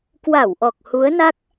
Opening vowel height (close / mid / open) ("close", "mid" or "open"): open